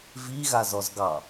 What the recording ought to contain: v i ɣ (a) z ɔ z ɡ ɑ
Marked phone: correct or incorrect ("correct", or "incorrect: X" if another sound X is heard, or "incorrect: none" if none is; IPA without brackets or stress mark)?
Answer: correct